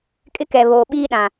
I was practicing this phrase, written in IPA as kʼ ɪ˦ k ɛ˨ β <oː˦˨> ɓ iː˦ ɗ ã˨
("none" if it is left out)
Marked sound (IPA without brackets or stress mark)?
oː˨